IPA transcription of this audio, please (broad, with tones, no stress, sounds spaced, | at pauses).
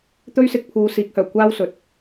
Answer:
t̪ ɵ˥ ɥ s ɪ˧ k̚ pʰ uː˨˧ s iː˨˥ k̚ h œː˨˩ kʷ aː˥ w s ɵ˨ t̚